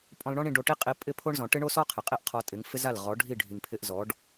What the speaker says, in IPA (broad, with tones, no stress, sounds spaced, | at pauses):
pʼ ɔ̃˧ l ɳ ɔ̃˦ ɳ ĩ˧ ɖ o˧ ʈ i˦ qʼ i˧ pʼ ɪ˦ pʰ o˦ ɳ z ɔ̃˨ ʈ ɪ˦ ɳ o˦ s ɔ˦ qʰ ɪ˨ qʼ i˦ ʔ qʰ ɔ˧ tʼ ɪ˨˦ ŋ f ɪ˦ z a˦˨ l ʁ ɔ˨˦ ɖʱ i˦˨ ɖʱ i˨ ŋ pʰ ɪ˧ ʔ z ɔ˨˦ ɖ